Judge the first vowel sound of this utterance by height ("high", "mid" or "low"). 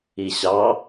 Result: high